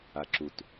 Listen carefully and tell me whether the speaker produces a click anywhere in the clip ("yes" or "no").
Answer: yes